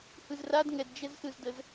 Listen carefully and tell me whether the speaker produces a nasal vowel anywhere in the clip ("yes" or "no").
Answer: no